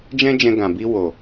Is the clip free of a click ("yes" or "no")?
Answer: yes